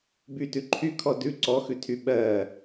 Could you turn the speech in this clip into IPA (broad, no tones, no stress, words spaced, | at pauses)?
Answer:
bytʉ ǃʰykʰɔ dʉ ǀɔxʉtʰy ɓɜ